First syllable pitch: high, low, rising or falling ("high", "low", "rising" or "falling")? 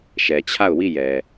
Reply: low